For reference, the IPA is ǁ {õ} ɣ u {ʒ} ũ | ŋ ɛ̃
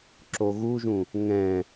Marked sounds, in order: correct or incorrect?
incorrect: o, correct

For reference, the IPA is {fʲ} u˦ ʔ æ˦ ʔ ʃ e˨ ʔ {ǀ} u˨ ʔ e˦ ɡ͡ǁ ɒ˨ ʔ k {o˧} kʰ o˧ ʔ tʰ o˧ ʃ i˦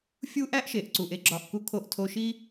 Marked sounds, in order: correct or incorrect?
correct, correct, incorrect: u˧

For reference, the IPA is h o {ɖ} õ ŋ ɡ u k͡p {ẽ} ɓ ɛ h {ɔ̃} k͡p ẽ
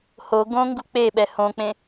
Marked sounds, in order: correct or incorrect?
incorrect: ɡ, incorrect: e, incorrect: õ

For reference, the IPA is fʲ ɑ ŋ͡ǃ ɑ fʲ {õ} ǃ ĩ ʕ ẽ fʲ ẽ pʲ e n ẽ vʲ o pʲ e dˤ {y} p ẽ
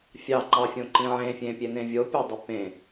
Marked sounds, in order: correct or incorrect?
correct, correct

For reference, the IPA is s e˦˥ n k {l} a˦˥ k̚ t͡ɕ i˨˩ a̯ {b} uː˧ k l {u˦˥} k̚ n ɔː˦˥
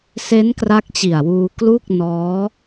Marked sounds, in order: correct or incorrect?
incorrect: r, incorrect: w, incorrect: u˥˩

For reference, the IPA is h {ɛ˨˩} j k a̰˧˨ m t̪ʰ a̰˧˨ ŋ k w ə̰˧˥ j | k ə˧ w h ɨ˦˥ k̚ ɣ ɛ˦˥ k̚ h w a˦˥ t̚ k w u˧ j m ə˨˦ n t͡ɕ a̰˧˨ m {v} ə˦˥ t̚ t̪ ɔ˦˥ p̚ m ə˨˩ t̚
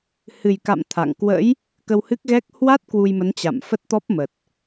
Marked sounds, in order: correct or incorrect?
incorrect: ɨ˨˩, incorrect: f

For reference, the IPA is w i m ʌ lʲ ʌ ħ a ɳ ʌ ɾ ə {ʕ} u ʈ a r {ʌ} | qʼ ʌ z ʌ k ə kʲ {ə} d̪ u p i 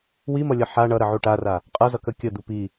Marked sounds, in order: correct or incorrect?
correct, incorrect: a, correct

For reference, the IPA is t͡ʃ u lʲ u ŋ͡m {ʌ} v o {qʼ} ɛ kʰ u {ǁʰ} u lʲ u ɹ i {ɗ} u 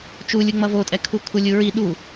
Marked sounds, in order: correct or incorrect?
correct, incorrect: tʼ, incorrect: kʰ, correct

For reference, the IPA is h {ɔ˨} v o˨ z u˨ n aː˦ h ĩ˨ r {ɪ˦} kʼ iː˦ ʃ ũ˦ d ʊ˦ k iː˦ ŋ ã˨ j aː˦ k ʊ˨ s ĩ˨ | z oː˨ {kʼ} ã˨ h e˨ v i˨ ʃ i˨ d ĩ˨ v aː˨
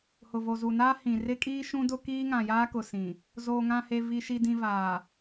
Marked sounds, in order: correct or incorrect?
incorrect: ʊ˨, correct, incorrect: ŋ

